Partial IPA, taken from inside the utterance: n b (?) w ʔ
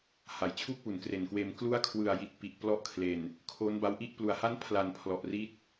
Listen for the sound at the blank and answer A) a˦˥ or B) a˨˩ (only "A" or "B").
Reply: A